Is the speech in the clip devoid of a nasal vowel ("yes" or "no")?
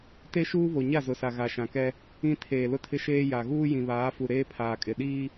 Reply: no